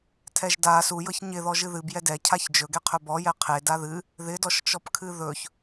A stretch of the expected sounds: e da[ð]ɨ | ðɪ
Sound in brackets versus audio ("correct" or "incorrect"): correct